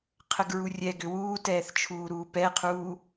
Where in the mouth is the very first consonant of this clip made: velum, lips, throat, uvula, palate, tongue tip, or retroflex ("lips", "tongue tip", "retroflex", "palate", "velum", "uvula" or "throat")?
uvula